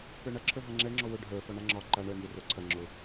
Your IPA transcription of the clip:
k ə˞ ɳ ɐ ǁʰ ə˞ ɦ a ŋ͡ǁ ɛ ŋ͡ǁ ɔ w ʊ ɖʱ ə˞ f ɔ ɳ a ŋ͡ǁ ɒ ǃ a ɳ ə˞ n z ʊ r ə˞ ǀʰ ɐ ŋ͡ǁ ʊ

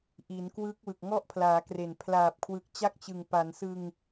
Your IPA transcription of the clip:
ʔ i˩˦ n k w ɯ˦˥ k̚ w ɯ˨˩ k̚ ŋ ɔ˦˥ ʔ pʰ l aː˩˦ k r e˨˩ n pʰ l aː˨˩ p̚ kʰ w ɯ˨˩ k̚ t͡ɕ a˥˩ k̚ t͡ɕ ɯ˨˩ ŋ p a˩˦ n s ɯ˧ ŋ

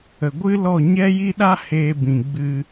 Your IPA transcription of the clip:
ə˨ ɡʷ ɨ˦ l ɔ˦˨ ɲ ɛ˦ j i˦ ɗ a˦ h eː˧ b ĩ˨ ɡ͡b ɨ˧

